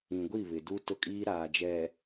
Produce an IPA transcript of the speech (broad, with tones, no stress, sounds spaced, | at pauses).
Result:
ĩ˨ ɡʷ i˦˨ β ɪ˨ d u˦ t ʊ˦ kʼ iː˦ ɾ aː˨ d͡ʒ ɛ˨